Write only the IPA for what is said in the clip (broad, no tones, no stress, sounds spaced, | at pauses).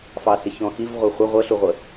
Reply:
f ɑ s ɪ ç ɔ̃ x i v ʁʷ ʌ χʷ ə ʁʷ ə ɬ u ʁʷ ə